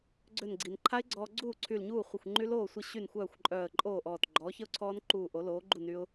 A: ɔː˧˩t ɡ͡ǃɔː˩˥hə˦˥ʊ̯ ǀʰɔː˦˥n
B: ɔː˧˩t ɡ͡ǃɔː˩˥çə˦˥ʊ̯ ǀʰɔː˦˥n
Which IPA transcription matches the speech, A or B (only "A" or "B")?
B